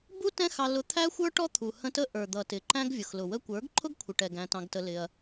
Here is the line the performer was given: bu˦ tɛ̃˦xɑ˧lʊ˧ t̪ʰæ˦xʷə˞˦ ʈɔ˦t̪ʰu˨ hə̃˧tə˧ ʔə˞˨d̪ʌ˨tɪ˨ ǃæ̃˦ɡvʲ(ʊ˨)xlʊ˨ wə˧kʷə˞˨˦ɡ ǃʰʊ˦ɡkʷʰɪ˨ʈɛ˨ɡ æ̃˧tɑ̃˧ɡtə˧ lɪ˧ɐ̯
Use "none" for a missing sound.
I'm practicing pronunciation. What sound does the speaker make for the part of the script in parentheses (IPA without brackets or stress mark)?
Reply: ʊ˨